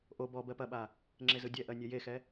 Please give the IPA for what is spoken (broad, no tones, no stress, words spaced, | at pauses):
ʔo bɔ bɜpɐɓa | ŋ͡ǁezɯdʲɛʔɜ nʲɛjexɛ